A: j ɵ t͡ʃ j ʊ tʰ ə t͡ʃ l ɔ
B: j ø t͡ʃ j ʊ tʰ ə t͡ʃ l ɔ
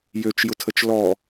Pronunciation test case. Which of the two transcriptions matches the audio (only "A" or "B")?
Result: B